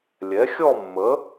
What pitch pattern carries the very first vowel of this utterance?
rising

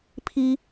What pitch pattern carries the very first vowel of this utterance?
high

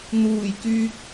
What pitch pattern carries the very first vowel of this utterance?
low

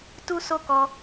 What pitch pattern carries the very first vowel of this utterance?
high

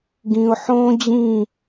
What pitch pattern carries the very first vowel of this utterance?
low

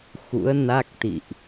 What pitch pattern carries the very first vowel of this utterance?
rising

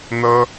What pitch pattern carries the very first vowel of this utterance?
high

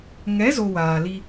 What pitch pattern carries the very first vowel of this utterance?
rising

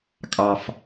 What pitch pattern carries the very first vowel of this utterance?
low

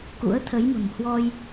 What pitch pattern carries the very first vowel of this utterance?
rising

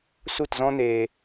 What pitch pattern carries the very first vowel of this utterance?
falling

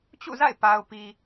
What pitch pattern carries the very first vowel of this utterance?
falling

